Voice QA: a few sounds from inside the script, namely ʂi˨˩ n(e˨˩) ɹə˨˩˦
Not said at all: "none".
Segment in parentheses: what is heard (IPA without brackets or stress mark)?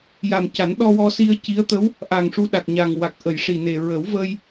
e˨˩